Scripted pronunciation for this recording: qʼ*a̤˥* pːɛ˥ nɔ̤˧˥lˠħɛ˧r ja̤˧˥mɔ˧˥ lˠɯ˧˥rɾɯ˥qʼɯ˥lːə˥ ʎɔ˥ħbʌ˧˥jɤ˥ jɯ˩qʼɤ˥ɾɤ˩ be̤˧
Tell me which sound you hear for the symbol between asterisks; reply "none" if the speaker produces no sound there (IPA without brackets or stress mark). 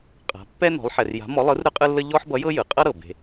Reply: a̤˧˥